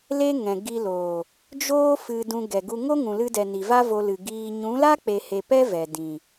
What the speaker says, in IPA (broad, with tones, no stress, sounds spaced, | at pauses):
l e˦ ŋ ɛ̃˨ ɡ i˧ l oː˨ | d͡ʒ oː˦ f ɨ˧ d ũ˧ ɡ ɛ˨ ɡ u˧ ŋ o˦ ŋ ũ˨ l ɨ˧ d ɛ˨ n i˨ v a˦ v o˧ l ɨ˨ ɡ iː˧ ɲ ũ˨˦ l a˦ k͡p e˨ h e˨ p ɛ˦ v ɛ˨ d ĩ˨